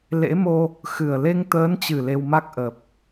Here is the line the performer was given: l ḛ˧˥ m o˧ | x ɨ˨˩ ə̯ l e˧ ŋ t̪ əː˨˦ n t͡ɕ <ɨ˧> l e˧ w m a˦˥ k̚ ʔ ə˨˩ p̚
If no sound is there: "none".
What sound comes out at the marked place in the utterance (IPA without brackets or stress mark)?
ɨ˨˩